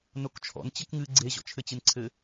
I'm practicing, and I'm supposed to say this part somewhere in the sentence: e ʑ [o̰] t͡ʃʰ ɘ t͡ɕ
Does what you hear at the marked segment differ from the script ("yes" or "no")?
yes